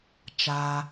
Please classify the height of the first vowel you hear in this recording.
low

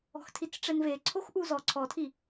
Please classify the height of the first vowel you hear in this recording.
mid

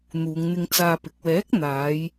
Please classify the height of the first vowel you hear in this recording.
high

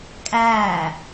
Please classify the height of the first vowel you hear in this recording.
low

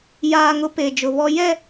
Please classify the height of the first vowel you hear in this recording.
low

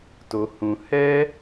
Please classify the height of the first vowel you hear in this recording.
mid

